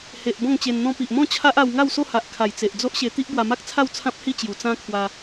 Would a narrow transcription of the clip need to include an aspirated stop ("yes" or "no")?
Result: yes